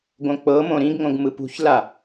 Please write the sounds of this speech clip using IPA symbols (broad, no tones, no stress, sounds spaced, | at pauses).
ɡ õ k͡p ɤ m õ ɾ ĩ ɡ ŋ õ ɡ m ɯ p ṳ ç l a